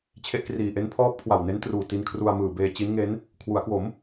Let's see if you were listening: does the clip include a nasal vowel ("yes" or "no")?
no